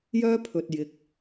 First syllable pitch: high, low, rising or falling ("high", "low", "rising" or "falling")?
high